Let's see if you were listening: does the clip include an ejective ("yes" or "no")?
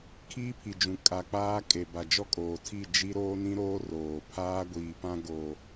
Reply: yes